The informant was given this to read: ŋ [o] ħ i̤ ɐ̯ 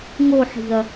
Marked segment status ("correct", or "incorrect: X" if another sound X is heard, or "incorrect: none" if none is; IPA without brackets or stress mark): correct